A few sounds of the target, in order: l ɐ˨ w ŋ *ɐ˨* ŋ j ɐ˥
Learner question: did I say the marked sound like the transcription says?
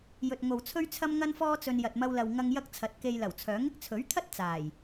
no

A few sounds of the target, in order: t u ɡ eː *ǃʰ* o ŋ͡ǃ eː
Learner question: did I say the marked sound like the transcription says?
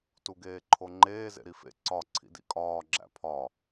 yes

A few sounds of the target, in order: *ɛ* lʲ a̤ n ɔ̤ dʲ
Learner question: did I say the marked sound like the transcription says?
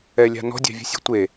yes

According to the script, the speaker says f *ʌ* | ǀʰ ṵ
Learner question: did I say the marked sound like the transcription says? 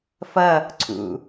yes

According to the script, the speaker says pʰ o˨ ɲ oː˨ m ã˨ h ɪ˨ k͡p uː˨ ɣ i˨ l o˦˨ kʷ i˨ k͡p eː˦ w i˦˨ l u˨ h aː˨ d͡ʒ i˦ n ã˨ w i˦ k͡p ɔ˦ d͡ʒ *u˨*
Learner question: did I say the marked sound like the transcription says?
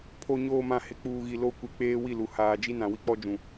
no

